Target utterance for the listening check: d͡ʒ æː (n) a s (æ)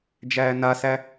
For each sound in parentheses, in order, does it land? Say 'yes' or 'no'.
yes, yes

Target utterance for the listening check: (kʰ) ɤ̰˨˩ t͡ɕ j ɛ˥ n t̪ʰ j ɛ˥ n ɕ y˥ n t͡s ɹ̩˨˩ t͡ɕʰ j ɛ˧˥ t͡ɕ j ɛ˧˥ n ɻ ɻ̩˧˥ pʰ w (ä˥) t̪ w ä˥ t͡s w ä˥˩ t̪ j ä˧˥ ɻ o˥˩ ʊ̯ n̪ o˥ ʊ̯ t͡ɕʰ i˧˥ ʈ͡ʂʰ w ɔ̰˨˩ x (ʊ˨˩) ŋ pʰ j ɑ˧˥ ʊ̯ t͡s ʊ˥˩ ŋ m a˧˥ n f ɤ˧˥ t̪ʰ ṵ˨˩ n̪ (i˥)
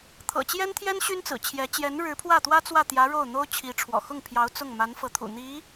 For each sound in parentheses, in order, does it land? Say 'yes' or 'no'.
no, no, no, no

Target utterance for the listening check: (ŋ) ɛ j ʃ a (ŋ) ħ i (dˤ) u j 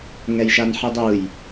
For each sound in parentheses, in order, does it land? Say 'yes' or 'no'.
yes, no, yes

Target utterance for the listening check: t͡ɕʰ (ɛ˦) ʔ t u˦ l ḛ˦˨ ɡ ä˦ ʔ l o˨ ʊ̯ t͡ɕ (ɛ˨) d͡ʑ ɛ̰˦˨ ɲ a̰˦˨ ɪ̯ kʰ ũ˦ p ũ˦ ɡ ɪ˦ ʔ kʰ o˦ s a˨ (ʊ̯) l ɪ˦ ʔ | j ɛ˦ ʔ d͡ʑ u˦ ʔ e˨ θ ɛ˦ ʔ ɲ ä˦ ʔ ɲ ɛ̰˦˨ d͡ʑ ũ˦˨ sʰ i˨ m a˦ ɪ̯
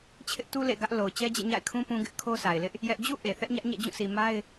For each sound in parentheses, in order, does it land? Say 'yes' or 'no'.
no, no, no

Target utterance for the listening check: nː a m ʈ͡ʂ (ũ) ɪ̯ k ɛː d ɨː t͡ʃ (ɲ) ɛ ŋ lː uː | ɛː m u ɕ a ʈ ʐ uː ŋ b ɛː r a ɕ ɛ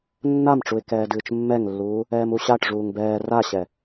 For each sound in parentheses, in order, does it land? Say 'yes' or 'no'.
no, no

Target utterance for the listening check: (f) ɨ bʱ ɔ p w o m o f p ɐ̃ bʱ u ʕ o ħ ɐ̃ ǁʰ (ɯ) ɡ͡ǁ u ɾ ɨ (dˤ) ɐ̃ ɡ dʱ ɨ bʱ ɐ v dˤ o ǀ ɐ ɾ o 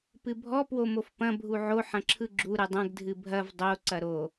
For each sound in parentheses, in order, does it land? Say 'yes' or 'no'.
no, yes, yes

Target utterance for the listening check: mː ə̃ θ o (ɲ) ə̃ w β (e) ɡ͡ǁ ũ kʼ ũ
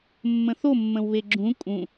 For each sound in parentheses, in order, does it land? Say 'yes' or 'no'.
no, yes

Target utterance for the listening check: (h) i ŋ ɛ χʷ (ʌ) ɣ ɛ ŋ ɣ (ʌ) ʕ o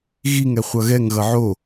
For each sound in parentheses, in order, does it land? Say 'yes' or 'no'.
no, yes, yes

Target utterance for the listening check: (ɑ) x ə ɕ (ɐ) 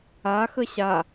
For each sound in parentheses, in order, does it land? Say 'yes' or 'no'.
no, no

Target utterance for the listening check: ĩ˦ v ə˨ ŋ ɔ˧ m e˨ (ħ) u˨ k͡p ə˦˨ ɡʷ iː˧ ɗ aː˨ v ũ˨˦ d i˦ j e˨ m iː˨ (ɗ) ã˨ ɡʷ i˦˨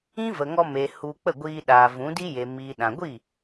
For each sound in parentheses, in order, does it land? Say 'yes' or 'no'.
no, yes

